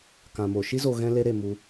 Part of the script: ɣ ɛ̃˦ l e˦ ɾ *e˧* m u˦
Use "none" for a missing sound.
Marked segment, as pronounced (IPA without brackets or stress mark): e˧